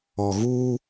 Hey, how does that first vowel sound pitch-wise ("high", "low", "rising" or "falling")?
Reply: low